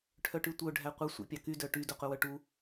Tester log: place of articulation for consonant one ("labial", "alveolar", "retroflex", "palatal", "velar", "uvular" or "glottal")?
retroflex